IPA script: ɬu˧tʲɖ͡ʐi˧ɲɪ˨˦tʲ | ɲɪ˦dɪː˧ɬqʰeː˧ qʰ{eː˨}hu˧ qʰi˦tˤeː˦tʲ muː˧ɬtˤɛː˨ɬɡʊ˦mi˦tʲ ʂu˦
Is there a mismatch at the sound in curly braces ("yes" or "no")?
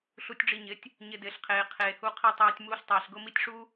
no